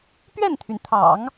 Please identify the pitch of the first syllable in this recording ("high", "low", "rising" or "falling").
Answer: falling